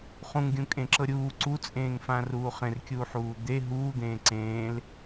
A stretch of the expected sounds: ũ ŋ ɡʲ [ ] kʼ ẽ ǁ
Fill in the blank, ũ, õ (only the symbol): ũ